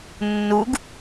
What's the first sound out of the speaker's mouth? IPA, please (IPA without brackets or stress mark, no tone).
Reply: nː